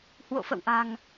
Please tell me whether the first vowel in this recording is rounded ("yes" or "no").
yes